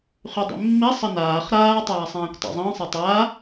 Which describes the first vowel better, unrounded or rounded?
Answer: rounded